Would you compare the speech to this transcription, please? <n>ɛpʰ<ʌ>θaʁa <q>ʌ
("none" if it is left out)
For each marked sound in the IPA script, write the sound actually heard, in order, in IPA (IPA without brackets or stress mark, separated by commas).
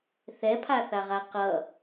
θ, a, q